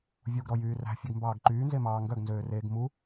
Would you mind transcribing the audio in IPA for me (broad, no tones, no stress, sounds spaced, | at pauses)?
vʲ u ɡ ɾ ɔ j yː r æ̤ fʲ ʉ ɡ m b ɑː ɡ ǃ yː n z e m ɑː ŋ ɡ œ ɡ n z øː r eː ɡ m u